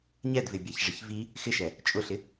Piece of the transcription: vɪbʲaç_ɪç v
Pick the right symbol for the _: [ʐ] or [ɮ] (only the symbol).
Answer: ʐ